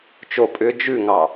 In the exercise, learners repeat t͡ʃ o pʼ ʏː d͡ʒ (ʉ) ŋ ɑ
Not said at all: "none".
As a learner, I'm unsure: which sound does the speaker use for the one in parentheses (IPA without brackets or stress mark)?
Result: ʉ